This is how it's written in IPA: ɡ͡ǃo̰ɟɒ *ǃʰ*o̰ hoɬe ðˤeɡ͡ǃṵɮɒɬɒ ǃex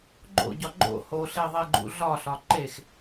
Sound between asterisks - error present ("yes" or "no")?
yes